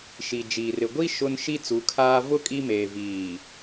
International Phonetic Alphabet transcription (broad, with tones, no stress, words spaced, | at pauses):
ʃi˨ d͡ʒiː˨rɪ˨ ɡʷi˦ ʃʊ˦n ʃi˦ t͡su˨˦kʰaː˦ vʊ˦ kʼi˦meː˨ viː˨